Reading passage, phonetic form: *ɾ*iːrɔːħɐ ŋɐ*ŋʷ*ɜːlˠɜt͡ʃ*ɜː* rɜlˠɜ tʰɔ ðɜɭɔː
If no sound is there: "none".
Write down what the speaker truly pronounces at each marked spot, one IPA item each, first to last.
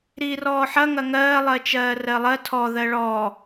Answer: ɾ, ŋ, ɜː

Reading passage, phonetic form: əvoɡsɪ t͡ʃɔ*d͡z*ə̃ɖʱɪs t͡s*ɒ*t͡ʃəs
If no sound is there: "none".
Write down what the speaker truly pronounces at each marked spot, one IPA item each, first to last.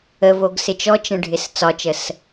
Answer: t͡ʃ, ɒ

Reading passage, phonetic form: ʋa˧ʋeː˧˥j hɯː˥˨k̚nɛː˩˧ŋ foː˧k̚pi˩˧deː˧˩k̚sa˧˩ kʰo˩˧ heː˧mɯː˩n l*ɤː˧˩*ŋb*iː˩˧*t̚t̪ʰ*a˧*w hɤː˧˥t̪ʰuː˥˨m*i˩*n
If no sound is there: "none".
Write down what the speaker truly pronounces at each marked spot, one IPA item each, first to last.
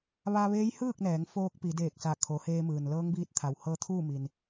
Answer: ɤː˧˥, iː˧, a˩, i˩

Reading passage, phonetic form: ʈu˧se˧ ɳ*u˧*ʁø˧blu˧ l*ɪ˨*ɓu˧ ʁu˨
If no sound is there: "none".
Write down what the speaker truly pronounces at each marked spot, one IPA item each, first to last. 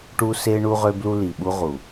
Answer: u˧, i˨

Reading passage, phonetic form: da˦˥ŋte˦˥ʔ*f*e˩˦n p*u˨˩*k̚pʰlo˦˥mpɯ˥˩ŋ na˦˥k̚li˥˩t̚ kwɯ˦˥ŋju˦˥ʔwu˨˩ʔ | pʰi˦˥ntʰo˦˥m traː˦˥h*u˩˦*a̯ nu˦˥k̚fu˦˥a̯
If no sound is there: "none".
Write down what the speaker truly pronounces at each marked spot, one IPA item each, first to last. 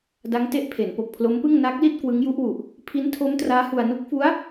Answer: pʰ, o˨˩, u˧

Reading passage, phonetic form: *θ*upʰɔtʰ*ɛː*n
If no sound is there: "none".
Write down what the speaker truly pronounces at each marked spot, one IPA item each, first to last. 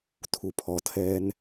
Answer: tʰ, ɛː

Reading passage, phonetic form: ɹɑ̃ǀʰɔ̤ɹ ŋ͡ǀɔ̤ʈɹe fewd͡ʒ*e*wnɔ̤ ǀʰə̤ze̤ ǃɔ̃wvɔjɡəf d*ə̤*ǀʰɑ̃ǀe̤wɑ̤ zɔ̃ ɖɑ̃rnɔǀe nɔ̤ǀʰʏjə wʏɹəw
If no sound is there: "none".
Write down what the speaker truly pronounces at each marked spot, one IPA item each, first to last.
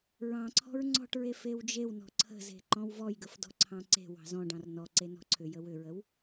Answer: e, ɔ̤

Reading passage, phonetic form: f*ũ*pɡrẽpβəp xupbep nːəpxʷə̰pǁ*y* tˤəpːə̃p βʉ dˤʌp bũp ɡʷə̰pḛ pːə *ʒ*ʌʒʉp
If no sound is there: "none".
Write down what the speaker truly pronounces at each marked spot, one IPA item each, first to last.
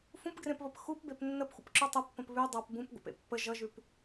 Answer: ũ, y, ʒ

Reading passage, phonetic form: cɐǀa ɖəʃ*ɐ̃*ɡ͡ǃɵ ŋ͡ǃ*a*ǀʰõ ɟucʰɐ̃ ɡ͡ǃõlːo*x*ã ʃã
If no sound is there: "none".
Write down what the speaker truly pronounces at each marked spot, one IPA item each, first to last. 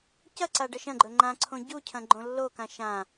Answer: ɐ̃, ã, k

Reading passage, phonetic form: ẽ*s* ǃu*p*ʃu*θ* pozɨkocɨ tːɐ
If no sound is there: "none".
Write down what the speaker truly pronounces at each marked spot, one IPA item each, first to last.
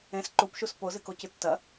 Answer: s, p, s

